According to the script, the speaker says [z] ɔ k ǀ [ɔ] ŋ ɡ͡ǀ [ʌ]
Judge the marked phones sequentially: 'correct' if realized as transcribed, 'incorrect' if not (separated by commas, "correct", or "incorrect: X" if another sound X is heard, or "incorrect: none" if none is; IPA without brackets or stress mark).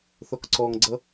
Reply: incorrect: θ, correct, correct